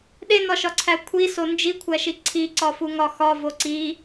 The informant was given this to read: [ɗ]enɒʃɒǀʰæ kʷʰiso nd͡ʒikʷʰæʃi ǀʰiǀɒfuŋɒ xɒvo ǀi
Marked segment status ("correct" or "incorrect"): correct